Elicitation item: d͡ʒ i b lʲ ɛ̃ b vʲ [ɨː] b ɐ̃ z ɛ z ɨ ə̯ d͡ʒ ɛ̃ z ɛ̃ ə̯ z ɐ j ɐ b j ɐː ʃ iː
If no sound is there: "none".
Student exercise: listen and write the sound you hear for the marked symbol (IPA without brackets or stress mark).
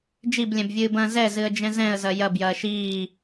ɨː